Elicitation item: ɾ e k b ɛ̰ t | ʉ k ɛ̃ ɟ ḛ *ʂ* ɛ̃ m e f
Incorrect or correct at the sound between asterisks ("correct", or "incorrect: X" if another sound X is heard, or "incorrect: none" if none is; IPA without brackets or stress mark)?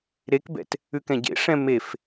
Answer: correct